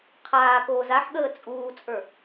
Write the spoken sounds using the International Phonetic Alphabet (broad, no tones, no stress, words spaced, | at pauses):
qʰaːkoː zaħɠəː t͡sʼuːt͡sʼə˞